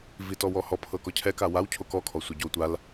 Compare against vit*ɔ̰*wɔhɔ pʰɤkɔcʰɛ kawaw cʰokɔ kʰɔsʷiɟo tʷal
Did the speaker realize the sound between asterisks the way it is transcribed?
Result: no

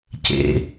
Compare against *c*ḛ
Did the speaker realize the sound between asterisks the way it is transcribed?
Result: yes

